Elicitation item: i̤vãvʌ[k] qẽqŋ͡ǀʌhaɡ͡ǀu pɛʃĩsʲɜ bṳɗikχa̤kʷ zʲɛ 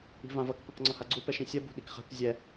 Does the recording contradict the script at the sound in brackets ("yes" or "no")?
no